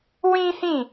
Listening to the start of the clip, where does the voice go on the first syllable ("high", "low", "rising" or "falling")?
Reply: high